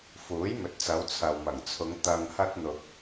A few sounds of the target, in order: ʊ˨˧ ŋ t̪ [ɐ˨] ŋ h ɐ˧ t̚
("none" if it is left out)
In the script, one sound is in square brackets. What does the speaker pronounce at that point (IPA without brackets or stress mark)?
ɐ˨